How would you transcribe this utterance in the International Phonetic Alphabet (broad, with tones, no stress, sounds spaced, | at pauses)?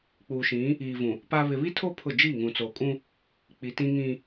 k͡p uː˨ ʃ ĩ˨˦ | iː˨ v ũ˨ | p a˦ β ɪ˨ β i˦ tʰ o˦ pʰ ʊ˦˨ d͡ʒ iː˦˨ ŋ ũ˨ t͡s oː˨ kʼ ũ˦ | k͡p i˨ t ĩ˦ ŋ ĩ˦